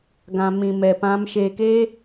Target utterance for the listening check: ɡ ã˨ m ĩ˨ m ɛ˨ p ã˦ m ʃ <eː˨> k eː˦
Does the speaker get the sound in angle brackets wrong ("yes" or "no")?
no